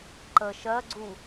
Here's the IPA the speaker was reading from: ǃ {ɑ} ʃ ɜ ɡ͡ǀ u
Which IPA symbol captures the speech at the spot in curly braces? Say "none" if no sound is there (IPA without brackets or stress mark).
ə